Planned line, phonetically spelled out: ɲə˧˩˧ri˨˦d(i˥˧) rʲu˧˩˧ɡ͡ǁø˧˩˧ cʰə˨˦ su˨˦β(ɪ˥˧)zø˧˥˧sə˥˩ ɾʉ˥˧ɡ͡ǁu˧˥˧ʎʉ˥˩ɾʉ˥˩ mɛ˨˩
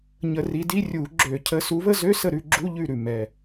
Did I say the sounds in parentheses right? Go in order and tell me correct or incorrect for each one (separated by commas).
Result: incorrect, incorrect